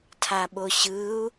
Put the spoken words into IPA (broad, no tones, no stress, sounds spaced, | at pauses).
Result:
tʰ a ɓ o ɕ ɯ u̯